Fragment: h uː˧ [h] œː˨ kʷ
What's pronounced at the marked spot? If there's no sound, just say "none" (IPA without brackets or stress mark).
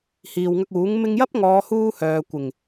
h